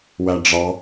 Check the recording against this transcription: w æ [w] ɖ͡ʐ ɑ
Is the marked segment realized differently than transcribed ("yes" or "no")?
yes